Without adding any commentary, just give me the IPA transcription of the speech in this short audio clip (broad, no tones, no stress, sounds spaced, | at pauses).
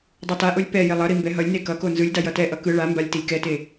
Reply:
dˤ o t a ʔ o lʲ p ɛ j e lˠ ʌ ɾ i m b ɛ ɦ ʌ lʲ n e k ʌ k o n z ɯ lʲ d a j ʌ t ɛ ʔ ʌ k ɯ ɭ a m b a lʲ t i lʲ k ɛ t e